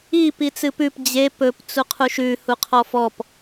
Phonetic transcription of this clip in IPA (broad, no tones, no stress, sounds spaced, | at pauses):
i p i t͡s ɨ p ʉ p d͡ʑ e p ɵ p t͡s u qʰ u ʃ ʉ h u qʰ ɔ f ɔ p